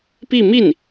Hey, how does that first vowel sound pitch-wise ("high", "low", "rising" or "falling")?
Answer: falling